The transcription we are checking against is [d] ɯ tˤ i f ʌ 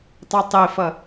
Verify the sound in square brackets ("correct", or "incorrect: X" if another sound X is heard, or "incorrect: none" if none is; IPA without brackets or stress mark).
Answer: incorrect: tˤ